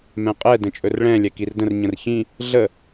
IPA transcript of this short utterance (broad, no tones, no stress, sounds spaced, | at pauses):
m ɛ̃ qʼ ɛ d ə̃ t͡ʃʼ ɵ r ɭ ɛ̃ lʲ ɛ k i r d ə̃ r ɲ ə̃ r ç ĩ | ɮ ə